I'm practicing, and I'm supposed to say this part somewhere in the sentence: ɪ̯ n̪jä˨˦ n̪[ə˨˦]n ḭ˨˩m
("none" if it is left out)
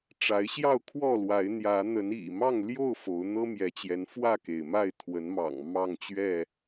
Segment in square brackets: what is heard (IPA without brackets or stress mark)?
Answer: ə˨˦